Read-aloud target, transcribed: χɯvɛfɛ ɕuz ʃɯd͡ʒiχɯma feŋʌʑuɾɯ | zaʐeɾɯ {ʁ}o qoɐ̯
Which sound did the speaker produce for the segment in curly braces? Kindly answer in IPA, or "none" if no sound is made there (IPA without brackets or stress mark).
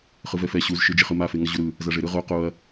ʁ